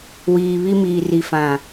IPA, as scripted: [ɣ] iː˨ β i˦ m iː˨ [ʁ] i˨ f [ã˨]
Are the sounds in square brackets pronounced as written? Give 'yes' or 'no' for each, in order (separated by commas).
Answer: no, no, yes